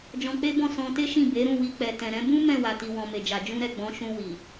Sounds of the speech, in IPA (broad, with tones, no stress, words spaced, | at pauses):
d͡ʒɔ̃˧k͡pe˦bɔ̃˦˨ sɔ̃˧te˦ʃĩ˦˨ be˨˦ɾũ˦˨wi˧ k͡pɛ˨tɛ̃˨ɾɛ̃˧ bũ˦mɛ̃˦˨wa˨ ti˨wɔ̃˨me˨d͡ʒa˨ d͡ʒũ˧ɾɛ˨ ɡ͡bɔ̃˨˦ ʃũ˧wi˨